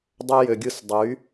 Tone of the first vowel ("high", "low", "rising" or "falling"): high